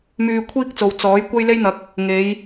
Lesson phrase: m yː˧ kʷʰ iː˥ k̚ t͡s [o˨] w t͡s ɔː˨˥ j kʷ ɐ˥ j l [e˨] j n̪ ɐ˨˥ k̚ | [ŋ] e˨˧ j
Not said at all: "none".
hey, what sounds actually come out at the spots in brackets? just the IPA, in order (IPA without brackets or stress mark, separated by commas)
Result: o˨, e˥, ŋ